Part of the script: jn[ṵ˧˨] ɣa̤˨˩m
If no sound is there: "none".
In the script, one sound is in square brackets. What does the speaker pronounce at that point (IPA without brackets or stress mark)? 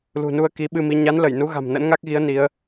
u˨˦